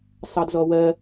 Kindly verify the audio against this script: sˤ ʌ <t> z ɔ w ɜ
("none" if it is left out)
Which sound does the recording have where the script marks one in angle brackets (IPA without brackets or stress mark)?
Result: d